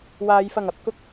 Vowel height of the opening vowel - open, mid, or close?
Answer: open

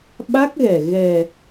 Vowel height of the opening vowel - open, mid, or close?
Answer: open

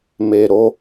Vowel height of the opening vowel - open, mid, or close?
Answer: mid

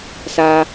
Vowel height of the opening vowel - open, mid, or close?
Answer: open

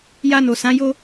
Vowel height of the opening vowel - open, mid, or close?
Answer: open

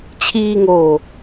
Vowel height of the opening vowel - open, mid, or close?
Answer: close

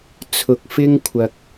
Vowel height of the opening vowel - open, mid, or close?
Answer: close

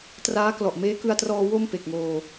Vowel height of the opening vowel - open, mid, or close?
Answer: open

